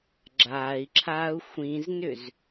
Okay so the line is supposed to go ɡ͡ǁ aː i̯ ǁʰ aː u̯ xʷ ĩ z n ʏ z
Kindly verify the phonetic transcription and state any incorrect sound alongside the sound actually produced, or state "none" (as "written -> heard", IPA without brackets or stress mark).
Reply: none